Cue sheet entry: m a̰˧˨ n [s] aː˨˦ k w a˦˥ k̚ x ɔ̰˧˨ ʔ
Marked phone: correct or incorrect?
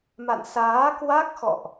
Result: correct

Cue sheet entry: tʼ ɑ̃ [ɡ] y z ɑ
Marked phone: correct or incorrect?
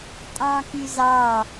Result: incorrect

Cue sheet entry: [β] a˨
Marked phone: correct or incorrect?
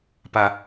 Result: incorrect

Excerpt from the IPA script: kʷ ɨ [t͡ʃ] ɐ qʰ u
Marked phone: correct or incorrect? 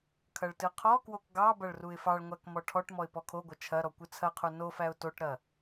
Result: incorrect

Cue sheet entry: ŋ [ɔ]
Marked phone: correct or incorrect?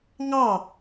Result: incorrect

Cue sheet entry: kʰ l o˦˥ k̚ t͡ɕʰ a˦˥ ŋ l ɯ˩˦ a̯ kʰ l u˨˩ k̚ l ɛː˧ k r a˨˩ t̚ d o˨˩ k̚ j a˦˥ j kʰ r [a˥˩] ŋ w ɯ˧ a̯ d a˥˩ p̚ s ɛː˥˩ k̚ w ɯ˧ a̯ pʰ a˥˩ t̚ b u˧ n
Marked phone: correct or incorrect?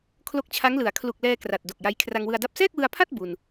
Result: incorrect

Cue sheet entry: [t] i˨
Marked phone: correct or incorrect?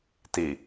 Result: correct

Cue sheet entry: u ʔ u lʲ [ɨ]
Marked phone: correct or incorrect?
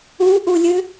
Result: correct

